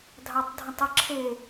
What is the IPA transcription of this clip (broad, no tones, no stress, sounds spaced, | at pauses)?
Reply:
dʱ ɑ tˤ dʱ ə̃ tˤ ə ǁʰ e